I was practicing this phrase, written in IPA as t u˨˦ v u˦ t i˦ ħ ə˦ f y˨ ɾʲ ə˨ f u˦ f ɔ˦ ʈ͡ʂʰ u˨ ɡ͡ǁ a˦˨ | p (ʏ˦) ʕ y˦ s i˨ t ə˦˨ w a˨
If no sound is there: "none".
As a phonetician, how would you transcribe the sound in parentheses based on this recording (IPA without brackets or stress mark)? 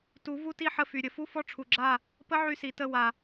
ə˦